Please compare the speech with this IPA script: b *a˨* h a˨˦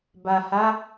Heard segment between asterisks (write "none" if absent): a˨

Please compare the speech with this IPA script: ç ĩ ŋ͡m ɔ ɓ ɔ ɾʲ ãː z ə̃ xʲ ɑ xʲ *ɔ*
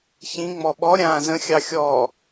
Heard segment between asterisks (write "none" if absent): ɔ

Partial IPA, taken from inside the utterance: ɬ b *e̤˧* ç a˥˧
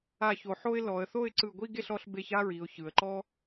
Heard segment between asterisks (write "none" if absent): e˧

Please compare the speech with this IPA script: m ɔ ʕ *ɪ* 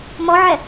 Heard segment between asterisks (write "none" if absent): ɛ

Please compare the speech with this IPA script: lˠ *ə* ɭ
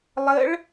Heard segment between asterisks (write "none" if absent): ə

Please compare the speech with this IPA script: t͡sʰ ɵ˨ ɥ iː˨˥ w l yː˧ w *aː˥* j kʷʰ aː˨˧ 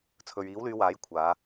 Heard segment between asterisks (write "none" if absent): aː˨˥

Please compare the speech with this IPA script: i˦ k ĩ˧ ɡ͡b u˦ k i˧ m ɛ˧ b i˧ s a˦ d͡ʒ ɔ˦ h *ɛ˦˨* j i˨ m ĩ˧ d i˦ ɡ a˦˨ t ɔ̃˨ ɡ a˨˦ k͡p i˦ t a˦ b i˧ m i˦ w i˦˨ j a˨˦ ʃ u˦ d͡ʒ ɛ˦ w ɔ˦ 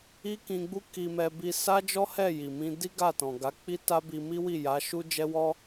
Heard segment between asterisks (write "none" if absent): ɛ˦˨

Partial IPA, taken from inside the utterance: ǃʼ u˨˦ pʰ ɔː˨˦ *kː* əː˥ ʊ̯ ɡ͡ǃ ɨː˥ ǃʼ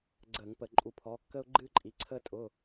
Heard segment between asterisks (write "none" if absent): kː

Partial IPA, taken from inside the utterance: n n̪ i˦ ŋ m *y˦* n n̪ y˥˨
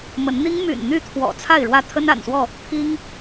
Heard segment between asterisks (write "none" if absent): y̰˨˩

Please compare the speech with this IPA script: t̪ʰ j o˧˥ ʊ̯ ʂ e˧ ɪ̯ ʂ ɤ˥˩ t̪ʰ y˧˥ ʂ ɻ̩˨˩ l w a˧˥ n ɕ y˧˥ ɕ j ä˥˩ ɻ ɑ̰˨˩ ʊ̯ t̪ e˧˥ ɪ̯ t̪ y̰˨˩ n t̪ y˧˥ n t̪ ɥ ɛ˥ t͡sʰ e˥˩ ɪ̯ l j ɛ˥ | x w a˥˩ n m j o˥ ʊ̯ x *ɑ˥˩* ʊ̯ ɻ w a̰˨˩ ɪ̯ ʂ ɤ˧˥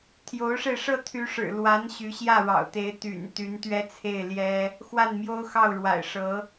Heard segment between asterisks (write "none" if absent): ɑ˥˩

